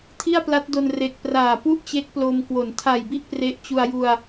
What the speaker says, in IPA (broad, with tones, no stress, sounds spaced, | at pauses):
tʰ i˥˩ a̯ p l a˦˥ t̚ d o˧ n r e˨˩ k̚ p r aː˨˩ p u˥˩ ʔ t͡ɕ e˦˥ k̚ p l o˧ m k w o˩˦ n tʰ a˨˩ j b i˥˩ ʔ p r e˦˥ ʔ t͡ɕ u˧ a̯ j u˧ a̯